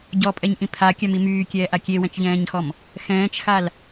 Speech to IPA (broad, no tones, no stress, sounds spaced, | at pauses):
ɟ ɔ pʼ ɛ ɲ ʔ ĩ pʰ a kʲ a m i m yː kʲ ɛː ʔ a kʲ e w ɛ̃ t͡ʃ ʎ ɛ̃ː ɲ x ɔ m | x ɛ̃ː t͡ʃ x a l